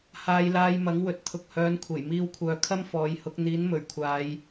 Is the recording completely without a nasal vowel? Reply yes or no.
yes